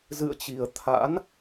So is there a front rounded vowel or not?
no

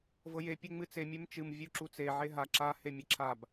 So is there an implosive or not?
no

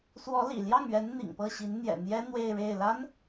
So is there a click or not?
no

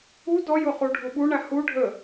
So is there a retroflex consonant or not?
yes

